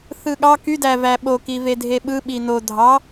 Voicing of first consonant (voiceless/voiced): voiceless